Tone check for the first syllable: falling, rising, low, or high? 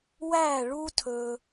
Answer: falling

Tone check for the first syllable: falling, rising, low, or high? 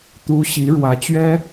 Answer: rising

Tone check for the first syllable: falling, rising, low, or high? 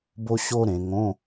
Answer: high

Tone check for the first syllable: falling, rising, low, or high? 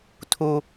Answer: high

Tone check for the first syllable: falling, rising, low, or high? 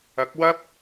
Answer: rising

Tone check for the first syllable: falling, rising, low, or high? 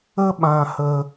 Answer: high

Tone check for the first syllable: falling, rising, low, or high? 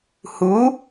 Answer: rising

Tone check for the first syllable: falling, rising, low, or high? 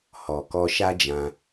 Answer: low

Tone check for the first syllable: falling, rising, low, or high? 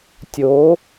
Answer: rising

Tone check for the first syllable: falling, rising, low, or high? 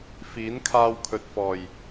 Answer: rising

